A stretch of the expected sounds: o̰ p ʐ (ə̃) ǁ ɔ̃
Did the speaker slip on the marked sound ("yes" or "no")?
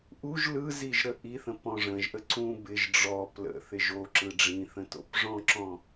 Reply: yes